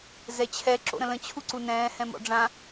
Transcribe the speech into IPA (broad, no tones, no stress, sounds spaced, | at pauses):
z ɛ t͡ɕʰ ɛ ǁ o̰ ɾ ə̃ l ə̃ t͡ɕʰ u ǀ u n ɛ̃ː h ɛ̃ m ɔ̰ ɖ͡ʐ ã